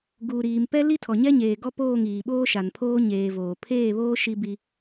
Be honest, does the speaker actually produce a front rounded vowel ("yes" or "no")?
no